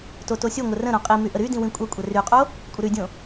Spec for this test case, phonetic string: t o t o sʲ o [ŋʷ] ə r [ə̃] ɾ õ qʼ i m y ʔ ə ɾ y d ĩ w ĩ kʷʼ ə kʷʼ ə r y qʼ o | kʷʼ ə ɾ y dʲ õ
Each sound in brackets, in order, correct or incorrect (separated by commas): correct, correct